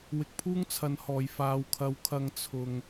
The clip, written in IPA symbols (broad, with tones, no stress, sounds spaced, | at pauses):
w ɪ˧ k̚ pʰ uː˥ ŋ t͡sʰ ɐ˨˧ n h ɔː˨ j f aː˨ w kʰ ɐ˨˥ w kʰ ɐ˨˧ ŋ t͡sʰ ʊ˧ ŋ